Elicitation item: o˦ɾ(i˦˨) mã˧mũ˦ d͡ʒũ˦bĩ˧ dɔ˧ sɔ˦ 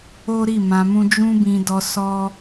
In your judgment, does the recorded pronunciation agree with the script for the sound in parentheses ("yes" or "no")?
yes